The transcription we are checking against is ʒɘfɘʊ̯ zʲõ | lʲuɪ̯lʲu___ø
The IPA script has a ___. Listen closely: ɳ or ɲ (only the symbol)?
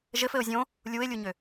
ɲ